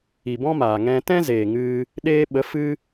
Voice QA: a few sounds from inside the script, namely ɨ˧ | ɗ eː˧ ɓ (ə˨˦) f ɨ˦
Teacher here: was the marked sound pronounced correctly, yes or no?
yes